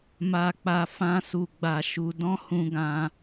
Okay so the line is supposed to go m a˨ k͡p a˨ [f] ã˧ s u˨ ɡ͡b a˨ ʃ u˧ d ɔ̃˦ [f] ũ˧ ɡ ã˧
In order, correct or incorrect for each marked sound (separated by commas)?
correct, incorrect